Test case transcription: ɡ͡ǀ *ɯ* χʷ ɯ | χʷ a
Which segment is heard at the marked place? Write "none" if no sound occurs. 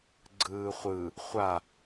ɯː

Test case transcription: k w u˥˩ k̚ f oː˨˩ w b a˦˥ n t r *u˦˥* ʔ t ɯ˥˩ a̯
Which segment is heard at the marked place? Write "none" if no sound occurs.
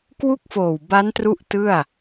u˦˥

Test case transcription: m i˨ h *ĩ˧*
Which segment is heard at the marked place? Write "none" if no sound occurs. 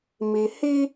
i˧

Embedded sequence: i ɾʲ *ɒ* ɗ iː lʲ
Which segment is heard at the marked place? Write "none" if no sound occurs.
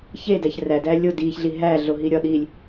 ɒ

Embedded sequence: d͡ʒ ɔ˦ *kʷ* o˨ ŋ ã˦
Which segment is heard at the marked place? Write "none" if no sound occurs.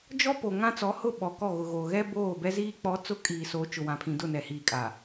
p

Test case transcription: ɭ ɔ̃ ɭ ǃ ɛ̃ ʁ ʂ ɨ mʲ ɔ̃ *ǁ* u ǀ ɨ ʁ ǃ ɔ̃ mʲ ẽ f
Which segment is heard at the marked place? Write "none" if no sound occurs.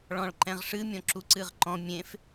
ǁ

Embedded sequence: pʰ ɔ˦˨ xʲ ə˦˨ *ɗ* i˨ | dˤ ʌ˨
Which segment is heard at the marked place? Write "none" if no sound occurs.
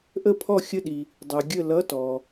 ɗ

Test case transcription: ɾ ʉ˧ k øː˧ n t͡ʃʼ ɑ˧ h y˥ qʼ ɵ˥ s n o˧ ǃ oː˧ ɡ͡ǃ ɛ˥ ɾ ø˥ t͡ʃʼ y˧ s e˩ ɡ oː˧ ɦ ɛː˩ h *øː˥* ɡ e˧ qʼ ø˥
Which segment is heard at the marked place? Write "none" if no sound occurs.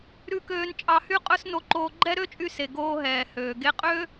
øː˩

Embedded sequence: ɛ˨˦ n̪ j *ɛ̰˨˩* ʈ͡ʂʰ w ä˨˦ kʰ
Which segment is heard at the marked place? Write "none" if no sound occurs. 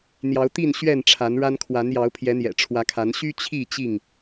ɛ̰˨˩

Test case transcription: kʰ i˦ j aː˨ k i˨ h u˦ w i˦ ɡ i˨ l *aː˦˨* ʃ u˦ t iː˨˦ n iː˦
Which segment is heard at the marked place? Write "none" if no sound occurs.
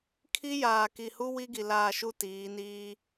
aː˦˨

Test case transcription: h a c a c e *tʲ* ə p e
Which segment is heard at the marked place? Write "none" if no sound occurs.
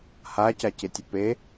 tʲ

